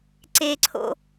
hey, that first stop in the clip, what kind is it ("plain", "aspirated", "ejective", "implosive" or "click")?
click